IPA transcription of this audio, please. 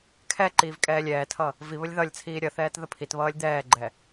kʰɛǃiːv kʼɛːlʲɛːtʰʌ | vi βəlʲðʌlʲt͡sʰiː ɾʲʌθɛːt ðəpʰitβʌːlʲ d̪ɛːɡ͡ǃɛ

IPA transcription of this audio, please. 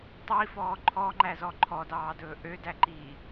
tˤifɔː ǃʰɔŋ͡ǃæzɔ ǃʰɔdɑːdɵː ʔødæǃiː

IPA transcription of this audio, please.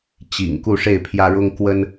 t͡ɕḭ˨˩ŋ ku˥˨ʂe˥˨ɪ̯pʰjä˦ ɻʊ˦ŋkwə˦n

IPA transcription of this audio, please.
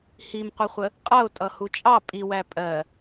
himqʷəχʷə | qʼʌʊ̯ tʼʌhut͡ʃʼɑ pʼiwæ pʼɜ

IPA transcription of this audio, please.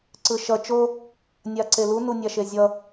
ǀɯʃʌ t͡ʃo | nʲaǀelu nunʲaʃezʲʌ

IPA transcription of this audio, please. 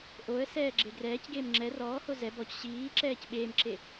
ʔoə̯ sɛːɡ͡ǁeɡrɛːcɡeːm ŋ͡ǁɛ rɔːho zɛ bɔc ɕiːǁɛːc ɓeːmǁe

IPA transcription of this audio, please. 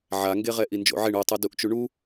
ʕaŋɡeʁɛ ʔind͡ʒo̰ʕeɳ utˤɯ duʔt͡ʃuɳu

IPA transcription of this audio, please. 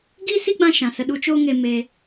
ɡiː˦si˦ɡ͡bã˧ ʃã˨sə˧ ɗu˧t͡ʃoː˦ŋe˧meː˧

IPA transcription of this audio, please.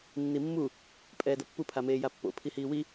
nːimːu | pʼɛːdʌpːu pʰameːjapːo̰ pʰihiːwi

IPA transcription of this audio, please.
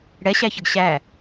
ɽɛɕæçəɡ ɕæ

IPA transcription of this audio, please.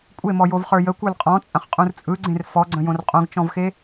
kʷʼemɔjovχə˞ jəkʷə˞l qʼɔ̃t͡sʼɐ̃χqʼũr t͡sʼɯɡ͡ǀẽr fɔɡ͡ǀə̃jõr qʼõɡt͡ʃɔ̃vxe

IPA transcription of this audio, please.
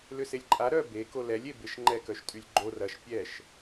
lʏselʲǃʼa ɾœ be kolɛlʲ ebɪʃ ŋ͡ǃɛkœʃtʼylʲ ɡ͡ǃor ɐʃ pʲɛʃ

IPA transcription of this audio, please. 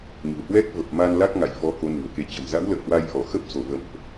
ɲṳ˨˩hwɛ˦˥k̚ və˨˩p̚ma˧n la˦˥k̚ŋa̰˧˨jfɔ˨˦ ko˨˦nṳ˨˩ə̯ke˧ t͡ɕə̤˨˩mza̰˧˥wlə̰ː˧˨hwa˧j ʔɔ˧˩xə˦˥p̚so˧˩ və̰˧˨mʔ

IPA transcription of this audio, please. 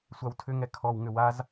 sʷawtʰʏŋɛ kʰɔwŋʏ waz

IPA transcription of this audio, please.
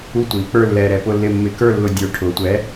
u˥˧tʷiː˩˧k͡pə˞˥˧ lːɛː˧ɾɛ˧pʊ˥˧lːɪ˥˧ mːɪ˧kə˞˥˧lːʊ˧dʲə˞˨˥ ʈʰʊː˩˧tʷɛː˨˥

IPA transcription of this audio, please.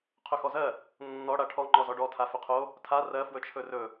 qʰɵxɔzɜ | nːɔ ɽaʈʰɔ ŋ͡ǃɔzɔɖɔ tʰafɵqʰo | tʰa rɜ fwɵt͡ʃʰɵrɵ

